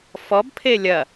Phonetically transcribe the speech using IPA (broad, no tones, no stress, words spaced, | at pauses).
fɔbpʰe lʲɐ